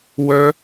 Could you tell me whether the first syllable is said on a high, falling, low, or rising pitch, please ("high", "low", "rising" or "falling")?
high